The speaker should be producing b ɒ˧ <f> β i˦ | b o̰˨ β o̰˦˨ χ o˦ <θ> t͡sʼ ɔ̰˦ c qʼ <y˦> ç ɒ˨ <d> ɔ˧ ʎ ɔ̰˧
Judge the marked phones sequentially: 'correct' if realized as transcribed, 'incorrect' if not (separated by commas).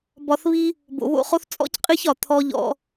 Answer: incorrect, correct, incorrect, incorrect